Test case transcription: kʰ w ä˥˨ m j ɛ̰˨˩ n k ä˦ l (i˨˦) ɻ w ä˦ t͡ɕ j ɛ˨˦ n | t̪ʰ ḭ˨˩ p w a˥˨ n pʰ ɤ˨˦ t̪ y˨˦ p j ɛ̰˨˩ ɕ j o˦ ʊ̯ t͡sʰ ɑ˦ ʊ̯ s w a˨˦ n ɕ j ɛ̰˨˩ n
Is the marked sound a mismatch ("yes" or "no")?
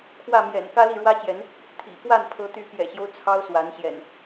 yes